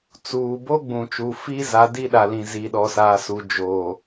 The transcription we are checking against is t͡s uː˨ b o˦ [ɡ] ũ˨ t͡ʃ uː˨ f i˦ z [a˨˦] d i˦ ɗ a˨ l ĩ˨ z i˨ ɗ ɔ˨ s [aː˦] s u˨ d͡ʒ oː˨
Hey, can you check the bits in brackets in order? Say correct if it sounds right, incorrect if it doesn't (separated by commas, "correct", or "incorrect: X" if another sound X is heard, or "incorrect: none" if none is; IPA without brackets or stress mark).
incorrect: ɡ͡b, correct, incorrect: aː˨